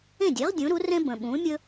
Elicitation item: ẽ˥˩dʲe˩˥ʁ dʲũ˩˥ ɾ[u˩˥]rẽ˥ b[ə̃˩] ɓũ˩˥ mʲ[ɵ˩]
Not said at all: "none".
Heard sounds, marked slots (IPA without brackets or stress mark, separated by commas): u˩˥, ə̃˩, ɵ˥